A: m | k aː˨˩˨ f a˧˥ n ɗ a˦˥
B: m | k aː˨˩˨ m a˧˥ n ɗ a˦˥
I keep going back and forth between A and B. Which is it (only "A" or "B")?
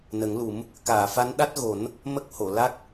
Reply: A